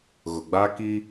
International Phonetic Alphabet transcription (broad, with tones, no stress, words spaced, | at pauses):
ɣʊ˨ɡ͡ba˦ki˦